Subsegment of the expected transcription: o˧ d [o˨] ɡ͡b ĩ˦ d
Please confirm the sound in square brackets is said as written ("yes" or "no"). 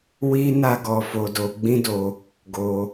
no